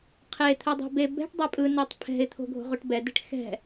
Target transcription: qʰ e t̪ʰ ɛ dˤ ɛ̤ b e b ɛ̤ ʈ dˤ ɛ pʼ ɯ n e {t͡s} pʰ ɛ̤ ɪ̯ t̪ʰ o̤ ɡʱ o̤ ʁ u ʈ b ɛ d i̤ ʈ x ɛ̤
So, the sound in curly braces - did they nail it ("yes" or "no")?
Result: no